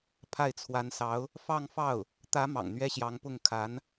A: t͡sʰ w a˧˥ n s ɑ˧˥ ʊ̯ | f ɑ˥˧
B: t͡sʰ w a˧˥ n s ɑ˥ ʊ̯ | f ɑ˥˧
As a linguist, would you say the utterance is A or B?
A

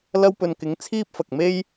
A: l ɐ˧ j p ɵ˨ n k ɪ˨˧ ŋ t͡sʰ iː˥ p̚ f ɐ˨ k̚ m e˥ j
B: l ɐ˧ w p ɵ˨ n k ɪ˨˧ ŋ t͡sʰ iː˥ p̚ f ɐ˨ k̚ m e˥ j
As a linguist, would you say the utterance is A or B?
B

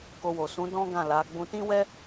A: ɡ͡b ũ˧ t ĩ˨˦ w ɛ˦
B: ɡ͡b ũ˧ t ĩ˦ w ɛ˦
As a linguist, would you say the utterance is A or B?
B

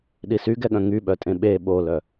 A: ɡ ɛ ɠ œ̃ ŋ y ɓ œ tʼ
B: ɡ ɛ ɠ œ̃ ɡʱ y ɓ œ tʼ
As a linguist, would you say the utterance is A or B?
A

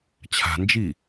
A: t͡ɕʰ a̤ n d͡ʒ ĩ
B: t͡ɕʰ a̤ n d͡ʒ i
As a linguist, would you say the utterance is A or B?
B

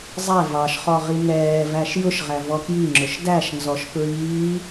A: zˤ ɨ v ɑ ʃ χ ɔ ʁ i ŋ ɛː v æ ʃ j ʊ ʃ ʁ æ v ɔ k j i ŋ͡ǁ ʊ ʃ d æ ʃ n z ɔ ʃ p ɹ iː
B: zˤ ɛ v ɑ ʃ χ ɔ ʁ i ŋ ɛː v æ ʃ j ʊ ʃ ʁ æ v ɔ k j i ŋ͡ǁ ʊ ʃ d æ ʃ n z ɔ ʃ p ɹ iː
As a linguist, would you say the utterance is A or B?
B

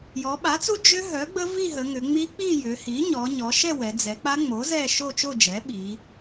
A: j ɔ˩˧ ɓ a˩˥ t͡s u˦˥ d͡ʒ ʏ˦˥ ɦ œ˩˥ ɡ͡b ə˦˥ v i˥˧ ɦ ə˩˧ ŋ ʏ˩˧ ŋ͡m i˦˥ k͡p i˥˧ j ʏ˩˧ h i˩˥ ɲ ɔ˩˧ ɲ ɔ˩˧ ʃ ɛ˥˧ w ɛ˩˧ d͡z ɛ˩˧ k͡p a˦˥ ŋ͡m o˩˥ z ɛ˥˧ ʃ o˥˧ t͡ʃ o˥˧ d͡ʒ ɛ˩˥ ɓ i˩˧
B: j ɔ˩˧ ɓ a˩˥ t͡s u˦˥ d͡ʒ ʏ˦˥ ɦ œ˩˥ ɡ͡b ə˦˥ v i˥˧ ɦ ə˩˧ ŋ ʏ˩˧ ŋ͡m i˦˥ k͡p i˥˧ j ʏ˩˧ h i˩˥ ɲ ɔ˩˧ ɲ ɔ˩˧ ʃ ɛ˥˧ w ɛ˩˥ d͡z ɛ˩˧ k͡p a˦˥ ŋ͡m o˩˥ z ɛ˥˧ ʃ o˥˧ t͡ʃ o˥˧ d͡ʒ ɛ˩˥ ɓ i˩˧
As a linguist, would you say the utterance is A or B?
A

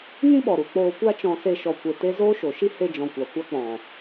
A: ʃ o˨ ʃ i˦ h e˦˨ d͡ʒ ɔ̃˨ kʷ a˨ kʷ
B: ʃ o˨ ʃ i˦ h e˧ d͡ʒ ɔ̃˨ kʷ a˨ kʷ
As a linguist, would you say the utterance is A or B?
B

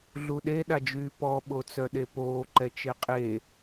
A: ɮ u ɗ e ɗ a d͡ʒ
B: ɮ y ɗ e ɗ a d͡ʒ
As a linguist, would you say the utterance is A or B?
A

